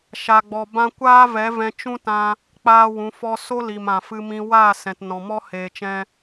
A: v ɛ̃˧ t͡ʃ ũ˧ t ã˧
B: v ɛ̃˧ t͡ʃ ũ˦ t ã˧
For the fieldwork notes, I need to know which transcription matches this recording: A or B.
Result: B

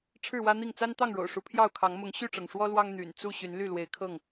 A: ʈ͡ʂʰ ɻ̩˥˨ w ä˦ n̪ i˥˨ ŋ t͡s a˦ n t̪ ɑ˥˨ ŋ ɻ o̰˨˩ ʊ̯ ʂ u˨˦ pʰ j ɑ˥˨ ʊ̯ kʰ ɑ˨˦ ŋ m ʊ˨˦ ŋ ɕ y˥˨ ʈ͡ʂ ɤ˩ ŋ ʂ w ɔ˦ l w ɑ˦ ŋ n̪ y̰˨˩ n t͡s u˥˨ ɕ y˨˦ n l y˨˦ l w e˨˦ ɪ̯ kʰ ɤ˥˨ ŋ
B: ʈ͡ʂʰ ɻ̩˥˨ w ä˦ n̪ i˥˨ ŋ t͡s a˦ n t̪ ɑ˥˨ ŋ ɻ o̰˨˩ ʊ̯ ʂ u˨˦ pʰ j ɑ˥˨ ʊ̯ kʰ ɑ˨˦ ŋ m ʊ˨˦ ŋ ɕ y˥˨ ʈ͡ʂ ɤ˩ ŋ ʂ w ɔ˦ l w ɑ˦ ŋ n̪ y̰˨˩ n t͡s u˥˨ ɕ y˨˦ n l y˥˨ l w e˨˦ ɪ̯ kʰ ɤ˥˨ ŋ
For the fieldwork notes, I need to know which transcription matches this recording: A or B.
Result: B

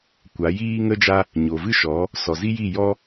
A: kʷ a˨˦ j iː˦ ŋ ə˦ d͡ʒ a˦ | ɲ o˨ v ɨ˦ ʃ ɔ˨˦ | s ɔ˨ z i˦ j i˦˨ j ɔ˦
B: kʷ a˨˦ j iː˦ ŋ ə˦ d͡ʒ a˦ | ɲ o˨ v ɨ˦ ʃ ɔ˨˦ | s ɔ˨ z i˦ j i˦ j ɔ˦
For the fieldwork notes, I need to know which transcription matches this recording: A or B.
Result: A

